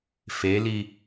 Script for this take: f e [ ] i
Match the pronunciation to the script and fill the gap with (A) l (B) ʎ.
A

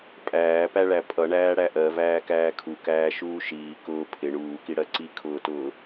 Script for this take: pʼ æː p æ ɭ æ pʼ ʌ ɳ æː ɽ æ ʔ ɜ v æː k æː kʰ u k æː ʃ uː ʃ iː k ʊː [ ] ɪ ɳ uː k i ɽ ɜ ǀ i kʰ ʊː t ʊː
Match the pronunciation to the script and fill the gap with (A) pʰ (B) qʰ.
A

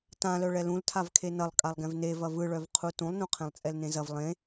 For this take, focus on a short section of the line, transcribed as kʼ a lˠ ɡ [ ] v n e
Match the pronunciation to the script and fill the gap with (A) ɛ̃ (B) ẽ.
A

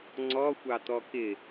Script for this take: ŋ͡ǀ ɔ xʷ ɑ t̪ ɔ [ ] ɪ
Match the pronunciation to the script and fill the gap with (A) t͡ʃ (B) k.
B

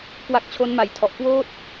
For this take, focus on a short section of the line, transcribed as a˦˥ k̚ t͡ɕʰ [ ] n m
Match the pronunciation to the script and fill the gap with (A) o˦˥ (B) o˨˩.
A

